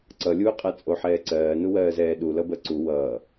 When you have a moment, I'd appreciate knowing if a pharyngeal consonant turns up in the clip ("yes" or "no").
yes